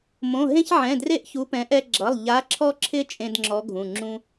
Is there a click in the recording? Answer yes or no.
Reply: yes